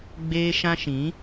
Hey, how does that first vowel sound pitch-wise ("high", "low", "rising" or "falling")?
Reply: high